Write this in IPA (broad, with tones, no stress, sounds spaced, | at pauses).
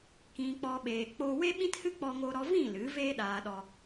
k ĩ˧ k͡p ɔ˧ ɓ eː˨ k͡p o˧ w e˦ ɓ ĩ˦ t h ɨ˦ k͡p ɔ˧ ŋ o˧ ɾ ɔ˧ v ĩ˦˨ l ɨ˨˦ v eː˦ ɗ aː˨ ɗ ɔ˨